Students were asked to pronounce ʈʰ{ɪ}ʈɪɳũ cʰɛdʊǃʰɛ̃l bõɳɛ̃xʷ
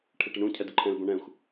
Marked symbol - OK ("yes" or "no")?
yes